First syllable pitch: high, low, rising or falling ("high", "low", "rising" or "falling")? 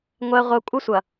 high